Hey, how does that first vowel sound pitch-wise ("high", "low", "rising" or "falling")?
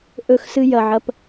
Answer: falling